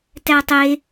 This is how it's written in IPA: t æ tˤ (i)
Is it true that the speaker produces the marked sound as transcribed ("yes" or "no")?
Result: no